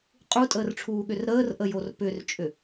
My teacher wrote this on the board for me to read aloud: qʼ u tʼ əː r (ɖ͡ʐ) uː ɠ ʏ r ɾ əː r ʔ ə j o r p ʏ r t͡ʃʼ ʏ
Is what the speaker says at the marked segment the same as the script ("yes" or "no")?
no